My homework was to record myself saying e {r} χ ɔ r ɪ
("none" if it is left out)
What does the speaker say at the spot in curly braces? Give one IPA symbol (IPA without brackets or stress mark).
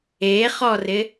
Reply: none